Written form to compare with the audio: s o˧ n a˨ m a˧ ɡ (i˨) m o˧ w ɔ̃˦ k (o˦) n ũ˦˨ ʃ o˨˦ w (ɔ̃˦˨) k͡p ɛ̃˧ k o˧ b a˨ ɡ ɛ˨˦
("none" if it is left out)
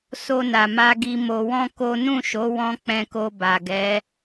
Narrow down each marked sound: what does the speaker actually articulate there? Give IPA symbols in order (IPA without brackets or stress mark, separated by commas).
i˧, o˦, ɔ̃˧